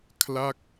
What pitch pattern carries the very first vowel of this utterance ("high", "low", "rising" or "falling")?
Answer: falling